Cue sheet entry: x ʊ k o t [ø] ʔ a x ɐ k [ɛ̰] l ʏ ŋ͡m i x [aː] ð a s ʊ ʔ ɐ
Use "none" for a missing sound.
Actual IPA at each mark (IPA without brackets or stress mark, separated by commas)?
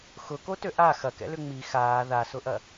ø, ɛ̰, aː